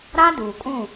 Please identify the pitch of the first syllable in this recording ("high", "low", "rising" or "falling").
high